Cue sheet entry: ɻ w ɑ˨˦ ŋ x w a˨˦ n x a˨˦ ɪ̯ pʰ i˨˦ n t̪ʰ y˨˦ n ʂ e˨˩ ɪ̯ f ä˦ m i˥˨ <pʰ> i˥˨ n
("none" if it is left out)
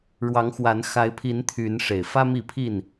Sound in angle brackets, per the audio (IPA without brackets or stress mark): pʰ